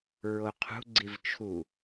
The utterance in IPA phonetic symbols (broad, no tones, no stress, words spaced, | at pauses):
ɹoqʰṳ ɡ͡ǀivt͡ʃʰu